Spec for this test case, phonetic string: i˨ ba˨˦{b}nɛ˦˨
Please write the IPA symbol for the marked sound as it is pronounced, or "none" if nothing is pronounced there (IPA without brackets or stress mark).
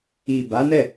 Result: none